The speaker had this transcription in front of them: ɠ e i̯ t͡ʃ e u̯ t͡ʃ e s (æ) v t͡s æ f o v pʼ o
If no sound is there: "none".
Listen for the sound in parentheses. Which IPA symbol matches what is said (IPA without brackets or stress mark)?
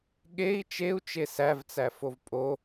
æ